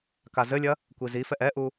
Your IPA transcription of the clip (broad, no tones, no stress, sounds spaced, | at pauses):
k a z ɘ lʲ ɐ | kʷ i z i f ɛ ʔ ɛ ʔ u